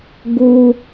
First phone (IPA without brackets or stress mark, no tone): ɡ